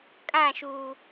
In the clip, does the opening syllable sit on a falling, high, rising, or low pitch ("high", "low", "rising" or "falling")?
falling